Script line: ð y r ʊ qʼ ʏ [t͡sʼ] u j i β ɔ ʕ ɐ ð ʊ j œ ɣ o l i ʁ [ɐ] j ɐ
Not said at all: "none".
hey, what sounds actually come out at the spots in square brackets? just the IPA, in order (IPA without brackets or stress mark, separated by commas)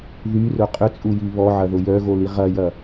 t͡sʼ, ɐ